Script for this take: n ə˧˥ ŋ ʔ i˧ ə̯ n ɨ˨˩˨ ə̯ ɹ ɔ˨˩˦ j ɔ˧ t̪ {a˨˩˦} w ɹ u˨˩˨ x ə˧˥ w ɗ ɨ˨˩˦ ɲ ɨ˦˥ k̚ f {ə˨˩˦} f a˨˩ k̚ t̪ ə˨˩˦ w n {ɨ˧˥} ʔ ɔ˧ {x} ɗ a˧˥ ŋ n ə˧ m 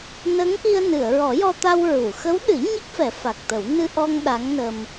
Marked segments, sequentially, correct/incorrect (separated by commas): incorrect, incorrect, incorrect, incorrect